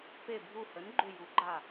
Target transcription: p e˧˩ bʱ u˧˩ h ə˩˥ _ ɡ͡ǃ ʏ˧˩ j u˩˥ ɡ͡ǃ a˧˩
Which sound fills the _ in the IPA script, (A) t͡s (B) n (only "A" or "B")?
B